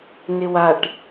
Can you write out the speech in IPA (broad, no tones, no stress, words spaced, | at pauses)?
nɪwaʈ